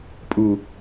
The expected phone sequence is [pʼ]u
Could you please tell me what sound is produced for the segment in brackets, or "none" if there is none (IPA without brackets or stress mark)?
pʼ